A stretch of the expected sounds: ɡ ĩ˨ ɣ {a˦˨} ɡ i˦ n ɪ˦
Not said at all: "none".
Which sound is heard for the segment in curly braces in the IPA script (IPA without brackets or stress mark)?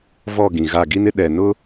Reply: a˦˨